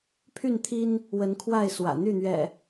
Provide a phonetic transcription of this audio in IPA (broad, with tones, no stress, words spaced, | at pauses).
pʰy˥˨nt̪ʰi˦n | wə˨˦nkʰwa˥˨ɪ̯ swä̰˨˩ n̪y˥˨n̪ɥɛ̰˨˩